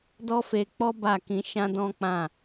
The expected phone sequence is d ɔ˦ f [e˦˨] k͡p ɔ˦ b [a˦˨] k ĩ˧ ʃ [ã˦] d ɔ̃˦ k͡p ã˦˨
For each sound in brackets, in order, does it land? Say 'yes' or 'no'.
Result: no, yes, yes

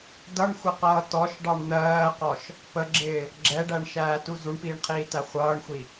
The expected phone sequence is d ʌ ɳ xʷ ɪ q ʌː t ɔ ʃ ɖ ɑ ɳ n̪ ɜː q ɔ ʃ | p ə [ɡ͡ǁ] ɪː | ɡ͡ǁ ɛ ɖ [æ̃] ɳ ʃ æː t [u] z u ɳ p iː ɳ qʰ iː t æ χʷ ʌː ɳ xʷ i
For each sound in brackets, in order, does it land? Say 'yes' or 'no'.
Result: yes, no, yes

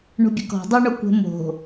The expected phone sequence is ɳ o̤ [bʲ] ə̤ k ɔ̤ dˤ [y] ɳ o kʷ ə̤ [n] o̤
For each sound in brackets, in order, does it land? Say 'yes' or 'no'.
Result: yes, yes, no

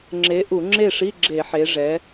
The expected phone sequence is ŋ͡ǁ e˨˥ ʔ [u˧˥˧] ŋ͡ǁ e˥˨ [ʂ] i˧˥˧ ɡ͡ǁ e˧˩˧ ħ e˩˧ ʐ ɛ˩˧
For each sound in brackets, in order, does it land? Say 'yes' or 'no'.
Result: no, yes

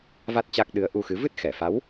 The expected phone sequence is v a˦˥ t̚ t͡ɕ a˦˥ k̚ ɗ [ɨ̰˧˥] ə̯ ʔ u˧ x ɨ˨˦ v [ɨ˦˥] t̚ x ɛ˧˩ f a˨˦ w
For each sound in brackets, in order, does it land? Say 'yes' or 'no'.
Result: no, yes

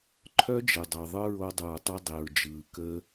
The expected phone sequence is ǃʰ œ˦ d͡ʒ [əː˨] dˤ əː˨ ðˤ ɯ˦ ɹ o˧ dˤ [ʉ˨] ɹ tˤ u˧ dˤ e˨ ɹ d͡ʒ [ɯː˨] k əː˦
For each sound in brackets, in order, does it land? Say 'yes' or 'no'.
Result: yes, no, yes

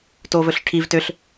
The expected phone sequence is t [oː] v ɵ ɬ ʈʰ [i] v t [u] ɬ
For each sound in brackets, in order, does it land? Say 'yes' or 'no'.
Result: yes, yes, no

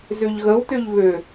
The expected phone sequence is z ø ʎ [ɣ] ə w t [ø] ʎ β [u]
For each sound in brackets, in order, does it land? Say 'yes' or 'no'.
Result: yes, yes, no

